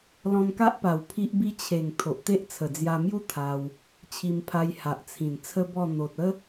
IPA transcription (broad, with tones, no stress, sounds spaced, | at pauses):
l ɔ̃˧ n k a˦ ʔ p a˨˩ w pʰ i˦ ʔ b i˦ t͡ɕʰ e˨˩ ŋ t̪ʰ o˨ ʔ t̪ e˦ ʔ t͡sʰ ə˨˩ d͡z j a˧ m j u˦ t̪ʰ a˧ w | t͡ɕʰ i˧ m pʰ a˧ j h a˨ ʔ t͡sʰ ĩ˨˩ n t͡sʰ ə˦ b ɔ˥˧ n̪ o˨ t̚ ə˦